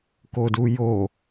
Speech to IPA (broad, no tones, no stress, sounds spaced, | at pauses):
k o d u j o